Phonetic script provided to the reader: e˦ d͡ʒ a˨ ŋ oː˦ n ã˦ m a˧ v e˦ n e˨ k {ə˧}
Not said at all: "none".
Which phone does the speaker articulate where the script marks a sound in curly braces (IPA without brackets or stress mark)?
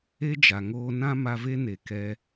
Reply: ɛ˧